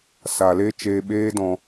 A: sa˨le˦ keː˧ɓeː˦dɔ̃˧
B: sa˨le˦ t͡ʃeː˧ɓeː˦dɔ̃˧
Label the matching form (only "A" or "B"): B